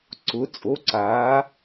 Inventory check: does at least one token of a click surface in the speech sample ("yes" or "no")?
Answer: yes